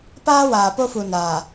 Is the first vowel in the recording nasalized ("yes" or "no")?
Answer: no